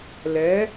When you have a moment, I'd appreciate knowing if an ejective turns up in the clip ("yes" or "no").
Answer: no